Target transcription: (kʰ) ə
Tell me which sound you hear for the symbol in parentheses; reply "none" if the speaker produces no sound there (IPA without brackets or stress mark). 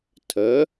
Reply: tʰ